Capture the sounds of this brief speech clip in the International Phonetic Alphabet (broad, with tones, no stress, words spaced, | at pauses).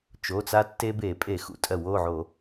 t͡ʃo˩˧˩t͡sa˦tːe˦ be˧˩˧pʼe˧˩˧ xṵ˩˧˩tʼɜ˧˩˧wo˩˧˩ʕo˧˩˧